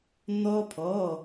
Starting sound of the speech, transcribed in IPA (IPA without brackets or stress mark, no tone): n̪